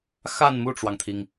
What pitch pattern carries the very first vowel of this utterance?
falling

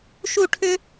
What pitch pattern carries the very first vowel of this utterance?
falling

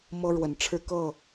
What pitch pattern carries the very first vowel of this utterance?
high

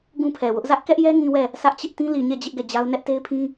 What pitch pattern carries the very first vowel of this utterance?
high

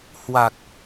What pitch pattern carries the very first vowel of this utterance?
low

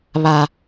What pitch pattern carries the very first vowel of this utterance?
low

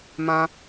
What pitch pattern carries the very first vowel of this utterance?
high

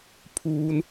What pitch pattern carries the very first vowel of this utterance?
high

